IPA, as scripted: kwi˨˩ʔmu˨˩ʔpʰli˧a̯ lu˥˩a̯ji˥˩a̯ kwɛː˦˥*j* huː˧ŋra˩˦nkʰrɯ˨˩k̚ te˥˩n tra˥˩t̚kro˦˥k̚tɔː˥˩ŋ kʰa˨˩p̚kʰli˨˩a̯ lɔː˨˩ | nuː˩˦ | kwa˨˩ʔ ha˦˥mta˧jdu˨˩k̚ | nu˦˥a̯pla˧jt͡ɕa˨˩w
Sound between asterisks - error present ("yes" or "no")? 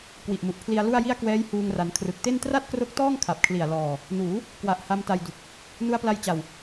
no